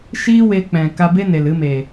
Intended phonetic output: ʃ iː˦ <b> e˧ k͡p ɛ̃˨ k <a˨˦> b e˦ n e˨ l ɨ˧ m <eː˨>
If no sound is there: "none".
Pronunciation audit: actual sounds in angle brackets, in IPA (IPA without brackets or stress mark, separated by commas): w, a˧, eː˨